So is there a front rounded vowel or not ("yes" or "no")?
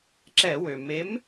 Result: yes